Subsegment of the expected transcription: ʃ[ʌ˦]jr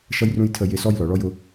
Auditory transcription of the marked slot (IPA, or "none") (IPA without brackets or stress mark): ʌ˦